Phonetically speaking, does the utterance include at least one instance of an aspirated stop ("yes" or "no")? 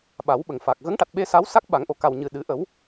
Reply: no